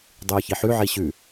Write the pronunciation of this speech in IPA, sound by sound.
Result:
dˤ yː ç i ħ ʉ ʕ i ɕ ʉ

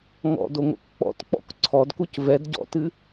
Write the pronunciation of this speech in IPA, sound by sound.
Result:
ŋ ɔ̰ d o ŋ o̰ k k͡p ɔ̰ t k͡p ɔ̰ k ǀʰ ɔ d k u c v ɛ d ɟ ɔ̰ t ɨ

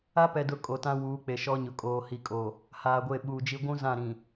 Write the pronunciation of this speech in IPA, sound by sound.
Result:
a˦ p ɛ˨ d ʊ˨ kʼ o˨ t ã˦ w uː˨˦ k͡p e˨ ʃ ɔ˦ ɲ ʊ˨ kʼ oː˨ h i˨ kʼ o˨ | h aː˨ ɡʷ e˦˨ ɓ uː˨ d͡ʒ i˦ ɡʷ ũ˦ z ã˦˨ ɾ ĩ˨

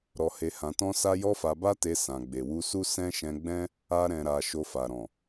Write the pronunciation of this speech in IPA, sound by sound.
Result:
ɾ ɔ˧ h e˧ h ã˧ t ɔ̃˦ s a˦ j ɔ˦ f a˧ b a˦ t e˧ s ã˨ ɡ͡b e˨ w u˧ s u˦ s ɛ̃˦ ʃ ɛ̃˧ ɡ͡b ɛ̃˦ | a˦ ɾ ɛ̃˧ ɾ a˧ ʃ o˧ f a˨ ɾ ɔ̃˨

